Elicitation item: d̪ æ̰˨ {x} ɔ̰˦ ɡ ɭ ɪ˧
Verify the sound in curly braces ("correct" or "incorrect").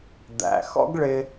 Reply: correct